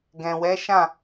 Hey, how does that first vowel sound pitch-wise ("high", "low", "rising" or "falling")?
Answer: low